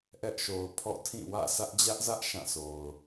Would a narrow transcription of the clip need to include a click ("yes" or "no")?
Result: no